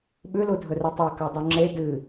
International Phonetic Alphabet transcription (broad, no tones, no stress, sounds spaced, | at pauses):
ɓ ʉ l u dʱ ɵ r ɨ tˤ a k a dˤ ʉ ŋ͡ǁ e d ɨ